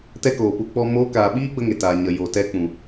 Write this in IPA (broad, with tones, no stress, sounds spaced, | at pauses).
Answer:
t ɛ˦ k oː˨ p u˧ k͡p ɔ˦ m oː˧ k aː˨ ɓ iː˦ ɡ͡b ə˦ ŋ e˨ t aː˨ ɲ ə˨ j o˨ t ɛ˧ k͡p ũ˨